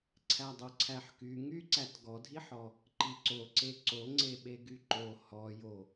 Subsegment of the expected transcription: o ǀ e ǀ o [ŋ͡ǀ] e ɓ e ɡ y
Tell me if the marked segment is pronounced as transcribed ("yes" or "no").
yes